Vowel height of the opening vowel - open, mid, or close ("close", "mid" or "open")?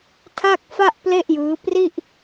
open